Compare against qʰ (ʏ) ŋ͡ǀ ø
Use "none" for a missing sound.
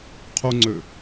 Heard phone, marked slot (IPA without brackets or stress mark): u